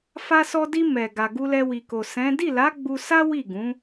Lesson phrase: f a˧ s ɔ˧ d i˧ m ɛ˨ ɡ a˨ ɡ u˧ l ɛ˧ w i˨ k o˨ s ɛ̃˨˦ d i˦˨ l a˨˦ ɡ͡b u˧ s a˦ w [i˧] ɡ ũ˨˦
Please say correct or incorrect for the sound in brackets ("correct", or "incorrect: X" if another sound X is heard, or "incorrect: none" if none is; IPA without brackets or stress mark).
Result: incorrect: i˦˨